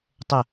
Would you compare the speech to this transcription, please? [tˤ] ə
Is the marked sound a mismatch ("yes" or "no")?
no